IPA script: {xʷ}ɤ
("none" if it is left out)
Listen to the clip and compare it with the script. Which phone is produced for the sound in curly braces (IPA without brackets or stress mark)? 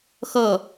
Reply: x